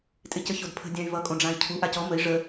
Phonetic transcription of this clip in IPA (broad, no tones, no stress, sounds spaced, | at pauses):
tʼ ɪ c ə ç o d pʰ ə̤ dʲ ã y̯ v ʌ kʼ õ ɖ͡ʐ ã i̯ cʰ u ʔ a c ɔ m ə i̯ ʐ ə